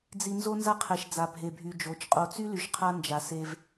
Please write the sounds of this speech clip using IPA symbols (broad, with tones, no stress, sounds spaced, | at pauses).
d͡z i˨ n z o˦ n z a˦ qʰ ɛ˨ ʃ d͡z a˨ bʱ e˨ bʱ y˨ d͡ʒ o˨˦ t͡ʃ qʼ o˨ t͡s y˦ l y˨ ʃ qʰ a˦ n d͡ʒ a˨ s e˦ v